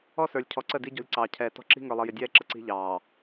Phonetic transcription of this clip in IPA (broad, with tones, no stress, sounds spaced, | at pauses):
ɔ˦ s ə˞˨ lʲ cʰ ɔ˨˦ ǀ ə˦˨ d i˦ ɟ ɔ̤˦ lʲ ǀ ɑː˨ cʰ ɛː˨ t ɔ̤˦ ǁ i̤˦ ŋ ə˞˨ lˠ ʌ˨ j ɪ˨ dʲ ɛː˦ ǁ ə˨ ǀ i̤˦ ʎ ɑː˨